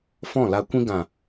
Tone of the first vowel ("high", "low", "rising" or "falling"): falling